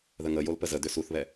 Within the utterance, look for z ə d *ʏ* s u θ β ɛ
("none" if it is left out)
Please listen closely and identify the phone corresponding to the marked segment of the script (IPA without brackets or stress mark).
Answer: ʏ